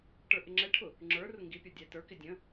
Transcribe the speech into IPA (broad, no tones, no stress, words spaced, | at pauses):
ʈə˞ʔɪŋ͡ǁɛʈʰʊ | ŋ͡ǁə˞ rʊŋɡipʲɔ dʲætə˞kɪ dʲə̃